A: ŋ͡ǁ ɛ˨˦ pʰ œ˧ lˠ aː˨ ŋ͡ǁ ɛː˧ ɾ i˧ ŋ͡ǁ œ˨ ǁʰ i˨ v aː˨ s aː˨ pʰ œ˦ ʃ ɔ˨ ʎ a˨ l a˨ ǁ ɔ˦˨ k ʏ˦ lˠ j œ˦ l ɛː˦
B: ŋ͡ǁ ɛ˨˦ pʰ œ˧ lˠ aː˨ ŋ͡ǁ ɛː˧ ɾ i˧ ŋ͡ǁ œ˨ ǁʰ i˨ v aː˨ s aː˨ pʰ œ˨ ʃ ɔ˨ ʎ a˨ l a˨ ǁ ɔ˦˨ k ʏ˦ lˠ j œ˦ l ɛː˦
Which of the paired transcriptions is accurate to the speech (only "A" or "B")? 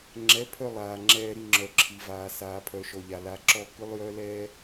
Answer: B